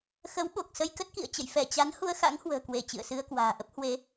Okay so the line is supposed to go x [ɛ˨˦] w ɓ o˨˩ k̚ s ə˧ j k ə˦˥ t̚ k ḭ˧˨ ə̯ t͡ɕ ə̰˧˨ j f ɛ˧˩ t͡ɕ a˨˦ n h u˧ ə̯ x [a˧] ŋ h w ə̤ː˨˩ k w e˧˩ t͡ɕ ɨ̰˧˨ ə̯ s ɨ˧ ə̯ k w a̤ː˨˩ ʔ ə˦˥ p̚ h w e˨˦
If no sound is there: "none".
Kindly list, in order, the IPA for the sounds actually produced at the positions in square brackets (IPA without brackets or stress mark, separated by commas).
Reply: ə˨˦, a̰˧˥